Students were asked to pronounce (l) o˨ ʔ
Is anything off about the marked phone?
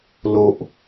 no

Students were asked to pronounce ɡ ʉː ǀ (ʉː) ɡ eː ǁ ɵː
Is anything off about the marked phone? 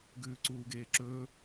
yes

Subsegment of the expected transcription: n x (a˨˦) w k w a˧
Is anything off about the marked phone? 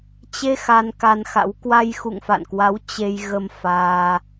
yes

